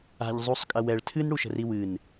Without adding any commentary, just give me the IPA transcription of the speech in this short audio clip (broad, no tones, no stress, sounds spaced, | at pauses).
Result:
a̤ ʎ zˤ u sˤ kʼ ɐ w ɛ ɭ tʰ ɨ n ɽ u ʃ ə̤ r i w ɨ n